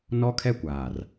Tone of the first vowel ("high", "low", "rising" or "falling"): high